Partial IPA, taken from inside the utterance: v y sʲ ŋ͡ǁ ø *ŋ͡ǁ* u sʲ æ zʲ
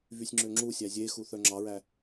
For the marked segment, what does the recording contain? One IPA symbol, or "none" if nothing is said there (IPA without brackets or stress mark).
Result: ŋ͡ǁ